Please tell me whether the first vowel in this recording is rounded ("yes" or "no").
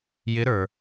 no